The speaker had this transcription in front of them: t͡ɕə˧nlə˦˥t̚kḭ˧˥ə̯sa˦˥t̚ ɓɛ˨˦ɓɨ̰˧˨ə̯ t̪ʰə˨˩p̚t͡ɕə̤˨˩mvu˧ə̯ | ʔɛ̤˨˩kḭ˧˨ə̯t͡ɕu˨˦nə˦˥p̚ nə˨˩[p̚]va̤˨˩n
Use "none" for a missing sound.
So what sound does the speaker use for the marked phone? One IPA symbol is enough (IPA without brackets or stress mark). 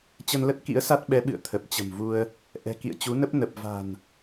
p̚